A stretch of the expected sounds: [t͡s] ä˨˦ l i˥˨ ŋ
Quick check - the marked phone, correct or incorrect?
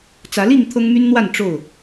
correct